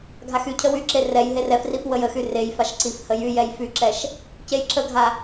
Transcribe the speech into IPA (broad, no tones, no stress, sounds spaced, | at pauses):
ɡʱ a x y cʰ ə w y ǁ e r ɛ j ɦ e r ɛ f r i f w ə j ə x y r e j f a ʃ ǀ i f h ə j y j ɛ j f y ǁ ɛ ʃ | c e j ǁ ə ɡʱ a